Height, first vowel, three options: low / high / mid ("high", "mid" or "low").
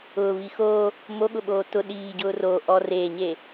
high